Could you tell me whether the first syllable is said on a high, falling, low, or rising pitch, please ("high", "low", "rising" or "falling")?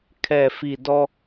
low